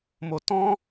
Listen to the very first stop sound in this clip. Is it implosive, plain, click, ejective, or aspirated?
plain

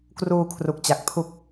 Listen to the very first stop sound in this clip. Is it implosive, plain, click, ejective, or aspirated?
plain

